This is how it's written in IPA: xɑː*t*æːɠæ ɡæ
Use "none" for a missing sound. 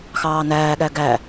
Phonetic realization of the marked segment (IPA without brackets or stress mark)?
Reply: n